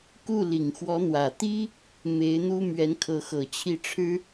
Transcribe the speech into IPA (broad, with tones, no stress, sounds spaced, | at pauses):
k u˥˩ l i˨˩ ŋ x w ɔ˧˥ n̪ w ä˨˩ t̪ i˥ | m e˧˥ ɪ̯ n̪ u˥ m ɥ ɛ˧˥ n kʰ ɤ˧˥ x ɤ˨˩ t͡ɕʰ i˥˩ ʈ͡ʂʰ ɻ̩˥